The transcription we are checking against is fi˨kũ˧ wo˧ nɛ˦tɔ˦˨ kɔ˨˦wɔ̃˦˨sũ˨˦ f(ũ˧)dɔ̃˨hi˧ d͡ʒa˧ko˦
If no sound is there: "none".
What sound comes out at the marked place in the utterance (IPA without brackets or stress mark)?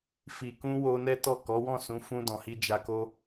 ũ˧